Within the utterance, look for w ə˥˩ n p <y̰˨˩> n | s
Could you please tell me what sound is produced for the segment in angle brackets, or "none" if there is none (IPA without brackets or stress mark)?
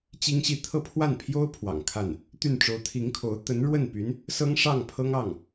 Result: y˧˥